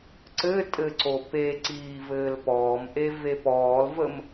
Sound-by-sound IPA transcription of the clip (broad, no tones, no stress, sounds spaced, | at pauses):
ǀ ɘː tʼ ɘ ǀ o p e ǀ iː v ɘː l p ɔː m ʔ e v e p ɔː l v ə m